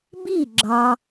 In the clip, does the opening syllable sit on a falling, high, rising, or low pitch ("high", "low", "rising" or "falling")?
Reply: falling